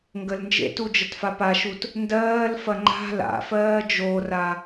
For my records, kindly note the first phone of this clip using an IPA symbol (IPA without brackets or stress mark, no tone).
ŋ